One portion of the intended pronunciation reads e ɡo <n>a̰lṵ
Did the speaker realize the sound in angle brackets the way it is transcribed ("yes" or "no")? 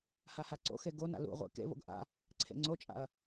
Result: yes